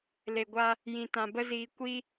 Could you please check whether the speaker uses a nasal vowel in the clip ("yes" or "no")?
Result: yes